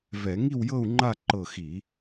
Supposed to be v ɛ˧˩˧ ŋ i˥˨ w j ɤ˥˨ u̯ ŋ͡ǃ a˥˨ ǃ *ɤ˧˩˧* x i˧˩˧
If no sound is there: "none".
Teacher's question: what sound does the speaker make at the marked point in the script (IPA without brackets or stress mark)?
ɤ˧˩